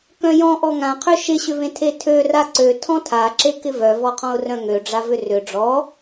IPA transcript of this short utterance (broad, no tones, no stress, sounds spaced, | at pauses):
k œ̃ j ɔ̃ ʔ ɔ ŋ ã qʰ ø ʃ ɪ ɕ ʏ v ẽ tʰ e tʰ ø r a ǀ ø tʰ ɔ̃ tʰ a ǁ e k ɪ v œ v ɔ qʰ ɔ̃ ʊ̯ r œ̃ ŋ ø ɖ͡ʐ a v ʏ r ʏ ɖ͡ʐ ɔ